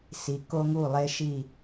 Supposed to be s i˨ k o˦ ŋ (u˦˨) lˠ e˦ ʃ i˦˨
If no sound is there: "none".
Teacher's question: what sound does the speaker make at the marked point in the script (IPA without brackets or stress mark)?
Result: u˦˨